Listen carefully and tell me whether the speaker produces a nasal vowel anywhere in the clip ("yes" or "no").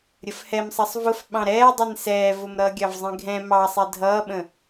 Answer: yes